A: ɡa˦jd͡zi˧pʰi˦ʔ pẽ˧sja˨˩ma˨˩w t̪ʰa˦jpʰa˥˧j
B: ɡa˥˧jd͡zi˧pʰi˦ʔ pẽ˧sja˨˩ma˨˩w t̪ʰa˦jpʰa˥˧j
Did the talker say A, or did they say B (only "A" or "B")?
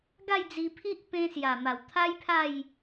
B